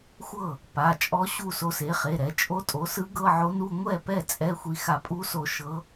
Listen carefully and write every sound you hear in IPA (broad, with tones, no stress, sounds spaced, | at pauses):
xʷ ɤ˥˩ | p a˩˧˩ t͡ʃʼ ɔ˧˥ ɕ u˥˩ s o˧ s e˩˥ χ e˩˧˩ ɾ ɛ˩˥ t͡ʃʼ o˧˥ tʼ o˩˥ s ɯ˧˥ ɡ ɤ˧˥˧ ʕ o˧˥ n u˧˥˧ ŋʷ ɛ˥˩ p ɛ˥˩ t͡sʼ ɛ˧˥˧ xʷ i˧ x a˧ pʼ u˧˥ s o˧ ʃ ɤ˧˥